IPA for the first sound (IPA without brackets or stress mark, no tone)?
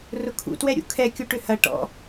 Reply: r